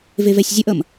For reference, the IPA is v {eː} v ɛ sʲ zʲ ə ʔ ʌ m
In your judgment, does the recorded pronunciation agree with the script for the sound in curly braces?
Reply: no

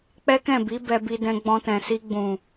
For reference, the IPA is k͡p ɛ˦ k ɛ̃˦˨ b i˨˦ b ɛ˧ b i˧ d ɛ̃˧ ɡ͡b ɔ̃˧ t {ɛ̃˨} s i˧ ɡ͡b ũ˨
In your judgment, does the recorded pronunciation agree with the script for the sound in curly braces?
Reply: yes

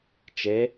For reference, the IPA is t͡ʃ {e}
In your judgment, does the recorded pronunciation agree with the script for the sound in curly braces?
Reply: yes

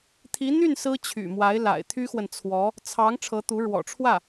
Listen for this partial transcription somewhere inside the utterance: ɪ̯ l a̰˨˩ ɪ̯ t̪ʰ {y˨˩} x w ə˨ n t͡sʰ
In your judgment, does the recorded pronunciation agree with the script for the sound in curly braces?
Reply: no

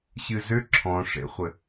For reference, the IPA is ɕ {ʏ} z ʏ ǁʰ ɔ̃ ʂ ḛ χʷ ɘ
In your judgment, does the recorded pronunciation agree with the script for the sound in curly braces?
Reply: no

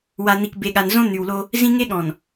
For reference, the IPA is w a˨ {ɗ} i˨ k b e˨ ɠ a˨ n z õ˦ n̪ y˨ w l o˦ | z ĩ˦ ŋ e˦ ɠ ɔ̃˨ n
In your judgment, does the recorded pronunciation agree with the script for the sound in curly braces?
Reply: no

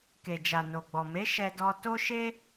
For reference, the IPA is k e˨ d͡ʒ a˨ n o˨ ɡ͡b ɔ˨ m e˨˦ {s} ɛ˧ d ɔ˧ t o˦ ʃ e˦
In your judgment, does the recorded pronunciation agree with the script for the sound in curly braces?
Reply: no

